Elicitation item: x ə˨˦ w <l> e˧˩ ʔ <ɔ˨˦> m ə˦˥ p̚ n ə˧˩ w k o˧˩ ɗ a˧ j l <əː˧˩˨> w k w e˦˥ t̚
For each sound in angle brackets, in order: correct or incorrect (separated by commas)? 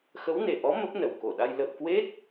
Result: incorrect, correct, incorrect